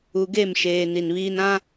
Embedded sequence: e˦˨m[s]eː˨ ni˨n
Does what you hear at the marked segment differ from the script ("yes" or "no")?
yes